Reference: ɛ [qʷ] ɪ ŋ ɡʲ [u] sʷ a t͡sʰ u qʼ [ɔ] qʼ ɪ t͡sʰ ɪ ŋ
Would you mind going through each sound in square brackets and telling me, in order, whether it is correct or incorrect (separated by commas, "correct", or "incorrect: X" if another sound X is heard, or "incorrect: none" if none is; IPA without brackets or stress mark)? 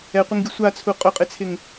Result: correct, incorrect: ʊ, incorrect: ʊ